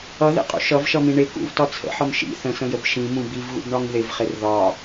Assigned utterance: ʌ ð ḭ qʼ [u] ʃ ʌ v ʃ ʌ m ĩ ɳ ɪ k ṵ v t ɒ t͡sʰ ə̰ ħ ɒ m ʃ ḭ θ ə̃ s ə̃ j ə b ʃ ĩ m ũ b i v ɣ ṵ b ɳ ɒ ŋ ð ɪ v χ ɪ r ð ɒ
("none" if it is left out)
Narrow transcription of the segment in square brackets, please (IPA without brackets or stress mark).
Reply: ṵ